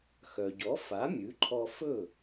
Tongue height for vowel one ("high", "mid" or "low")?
mid